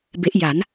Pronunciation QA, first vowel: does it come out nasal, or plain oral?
oral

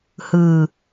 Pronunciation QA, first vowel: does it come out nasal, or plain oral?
oral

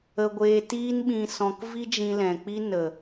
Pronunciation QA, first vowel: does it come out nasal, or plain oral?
oral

